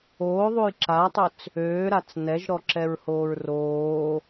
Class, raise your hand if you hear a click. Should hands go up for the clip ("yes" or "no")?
yes